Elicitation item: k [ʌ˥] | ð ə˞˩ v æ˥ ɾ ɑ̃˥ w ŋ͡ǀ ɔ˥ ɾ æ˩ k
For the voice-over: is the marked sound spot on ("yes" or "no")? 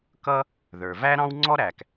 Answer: yes